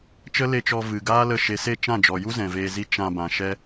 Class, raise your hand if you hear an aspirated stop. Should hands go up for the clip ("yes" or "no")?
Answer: no